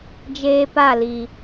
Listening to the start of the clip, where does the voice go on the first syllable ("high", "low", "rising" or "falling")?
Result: high